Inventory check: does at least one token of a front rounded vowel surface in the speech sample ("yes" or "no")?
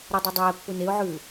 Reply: no